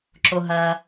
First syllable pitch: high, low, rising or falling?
low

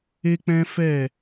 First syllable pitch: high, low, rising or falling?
high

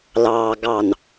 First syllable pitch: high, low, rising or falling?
low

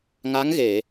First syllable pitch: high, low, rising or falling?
rising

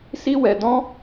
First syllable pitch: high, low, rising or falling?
high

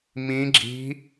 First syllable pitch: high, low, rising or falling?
rising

